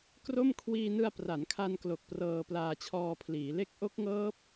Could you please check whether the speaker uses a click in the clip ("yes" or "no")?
no